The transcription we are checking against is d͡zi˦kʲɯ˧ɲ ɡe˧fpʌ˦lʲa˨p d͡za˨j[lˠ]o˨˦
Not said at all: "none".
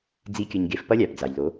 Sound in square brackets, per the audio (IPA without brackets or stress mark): l